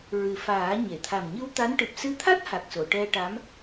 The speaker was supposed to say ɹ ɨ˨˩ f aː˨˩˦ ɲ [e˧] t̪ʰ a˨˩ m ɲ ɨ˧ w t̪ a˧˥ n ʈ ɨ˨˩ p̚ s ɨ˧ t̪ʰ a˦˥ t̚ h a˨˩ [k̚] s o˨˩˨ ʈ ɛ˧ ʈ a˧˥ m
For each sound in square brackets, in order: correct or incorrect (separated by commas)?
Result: incorrect, correct